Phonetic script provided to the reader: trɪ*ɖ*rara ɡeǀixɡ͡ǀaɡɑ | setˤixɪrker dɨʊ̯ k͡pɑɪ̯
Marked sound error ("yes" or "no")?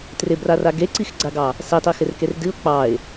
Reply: yes